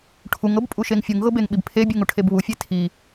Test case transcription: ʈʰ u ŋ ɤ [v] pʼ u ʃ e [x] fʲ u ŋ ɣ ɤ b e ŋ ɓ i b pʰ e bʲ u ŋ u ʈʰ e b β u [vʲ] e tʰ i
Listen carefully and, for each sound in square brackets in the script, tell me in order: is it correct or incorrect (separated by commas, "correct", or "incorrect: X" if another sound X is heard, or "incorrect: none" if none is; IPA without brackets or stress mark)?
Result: incorrect: b, incorrect: ŋ, incorrect: fʲ